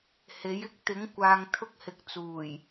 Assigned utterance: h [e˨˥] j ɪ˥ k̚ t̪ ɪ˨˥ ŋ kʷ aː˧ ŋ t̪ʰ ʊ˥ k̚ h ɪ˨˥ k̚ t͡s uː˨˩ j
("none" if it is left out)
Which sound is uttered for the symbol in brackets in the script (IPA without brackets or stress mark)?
e˨˥